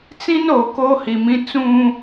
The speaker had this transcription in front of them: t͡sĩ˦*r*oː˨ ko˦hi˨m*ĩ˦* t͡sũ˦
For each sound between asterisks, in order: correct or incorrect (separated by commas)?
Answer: incorrect, correct